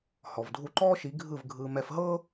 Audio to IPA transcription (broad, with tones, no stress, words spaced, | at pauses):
hɔ˩vdʱu˧ǃɔː˥ʃi˩˥ ɡʱɯ˥˩vɡʱɯː˧ mɛ˧fɦɤː˥